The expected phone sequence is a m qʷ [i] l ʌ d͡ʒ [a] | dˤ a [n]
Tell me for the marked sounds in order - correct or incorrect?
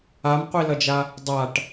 correct, correct, incorrect

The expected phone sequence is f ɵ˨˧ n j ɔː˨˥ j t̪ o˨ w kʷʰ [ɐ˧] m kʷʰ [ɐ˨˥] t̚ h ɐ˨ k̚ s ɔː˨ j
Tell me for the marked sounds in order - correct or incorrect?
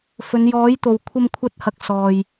correct, incorrect

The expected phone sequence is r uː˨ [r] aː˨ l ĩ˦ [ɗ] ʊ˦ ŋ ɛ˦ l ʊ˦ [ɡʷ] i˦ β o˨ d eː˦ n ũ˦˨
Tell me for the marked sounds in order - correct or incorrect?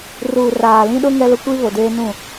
correct, correct, incorrect

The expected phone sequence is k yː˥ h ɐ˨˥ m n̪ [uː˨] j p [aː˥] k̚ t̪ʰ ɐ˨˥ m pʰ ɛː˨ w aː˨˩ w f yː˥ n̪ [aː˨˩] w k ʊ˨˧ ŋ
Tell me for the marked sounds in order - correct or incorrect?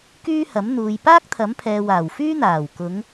correct, correct, correct

